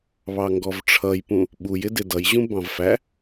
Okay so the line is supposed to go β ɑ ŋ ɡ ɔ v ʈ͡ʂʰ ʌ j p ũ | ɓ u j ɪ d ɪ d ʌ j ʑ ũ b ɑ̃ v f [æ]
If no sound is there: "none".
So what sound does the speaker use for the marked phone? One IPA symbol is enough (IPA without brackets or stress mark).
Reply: æ